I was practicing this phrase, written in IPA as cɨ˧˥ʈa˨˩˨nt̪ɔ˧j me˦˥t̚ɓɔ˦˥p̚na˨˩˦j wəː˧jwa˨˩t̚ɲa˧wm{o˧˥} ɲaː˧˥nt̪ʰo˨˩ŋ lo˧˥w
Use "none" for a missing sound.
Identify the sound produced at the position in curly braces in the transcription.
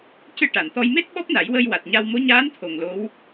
o˧˥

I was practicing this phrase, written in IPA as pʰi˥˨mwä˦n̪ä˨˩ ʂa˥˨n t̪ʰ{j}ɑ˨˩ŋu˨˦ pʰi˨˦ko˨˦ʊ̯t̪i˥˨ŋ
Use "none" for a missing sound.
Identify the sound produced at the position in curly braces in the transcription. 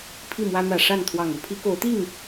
w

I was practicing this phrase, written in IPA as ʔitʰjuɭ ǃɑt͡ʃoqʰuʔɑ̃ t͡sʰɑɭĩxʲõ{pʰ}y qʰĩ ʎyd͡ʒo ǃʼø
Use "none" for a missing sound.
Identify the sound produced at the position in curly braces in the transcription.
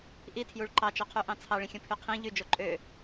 pʰ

